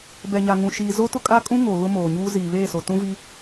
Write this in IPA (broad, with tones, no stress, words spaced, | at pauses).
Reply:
bɛ˨ɲa˨ ŋũ˨ʃiː˨ zo˦tʊ˦kʼa˦kʼũ˦ ŋo˨ ɣʊ˦moː˨ɲuː˦ ziː˨βeː˦˨so˨ tũ˦vi˦